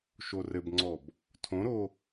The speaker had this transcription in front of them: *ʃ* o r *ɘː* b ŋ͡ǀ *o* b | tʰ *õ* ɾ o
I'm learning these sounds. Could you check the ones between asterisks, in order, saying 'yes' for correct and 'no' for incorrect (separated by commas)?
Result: yes, no, no, yes